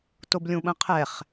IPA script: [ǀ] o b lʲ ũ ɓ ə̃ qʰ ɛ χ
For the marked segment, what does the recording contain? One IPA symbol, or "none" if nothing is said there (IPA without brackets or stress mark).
t